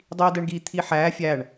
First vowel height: high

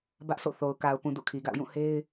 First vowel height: low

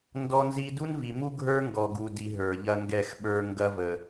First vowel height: mid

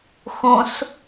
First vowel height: high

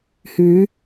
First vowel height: high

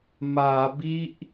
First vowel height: low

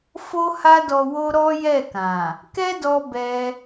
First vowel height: mid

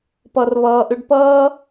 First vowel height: mid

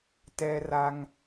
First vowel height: mid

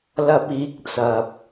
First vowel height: low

